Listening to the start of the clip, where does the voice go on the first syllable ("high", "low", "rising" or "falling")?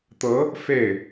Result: rising